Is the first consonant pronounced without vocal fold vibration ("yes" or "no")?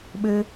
no